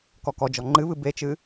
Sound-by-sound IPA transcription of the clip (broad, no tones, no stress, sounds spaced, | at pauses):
k ɔ k ɔ d͡ʒ ɔ ŋ͡ǃ ɨ β ɨ b e t͡ʃ ɨ